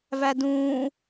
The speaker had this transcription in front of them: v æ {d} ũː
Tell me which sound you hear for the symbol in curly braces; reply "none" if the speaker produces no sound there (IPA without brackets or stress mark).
d